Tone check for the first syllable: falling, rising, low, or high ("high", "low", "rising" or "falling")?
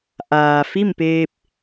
low